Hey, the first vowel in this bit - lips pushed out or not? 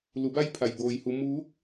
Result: yes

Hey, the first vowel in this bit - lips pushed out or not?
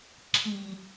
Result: no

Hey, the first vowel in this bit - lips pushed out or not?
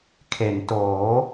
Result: no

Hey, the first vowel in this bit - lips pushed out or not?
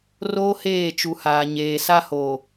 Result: yes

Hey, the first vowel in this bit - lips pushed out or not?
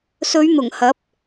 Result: yes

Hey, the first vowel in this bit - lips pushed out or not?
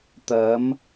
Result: no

